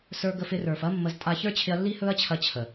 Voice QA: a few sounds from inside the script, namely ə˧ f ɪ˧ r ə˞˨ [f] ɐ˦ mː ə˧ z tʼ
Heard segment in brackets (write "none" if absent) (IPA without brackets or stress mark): f